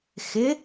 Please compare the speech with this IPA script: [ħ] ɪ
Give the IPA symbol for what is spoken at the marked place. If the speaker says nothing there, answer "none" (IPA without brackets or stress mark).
x